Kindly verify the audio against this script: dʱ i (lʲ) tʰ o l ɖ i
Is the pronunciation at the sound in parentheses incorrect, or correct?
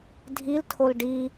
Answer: incorrect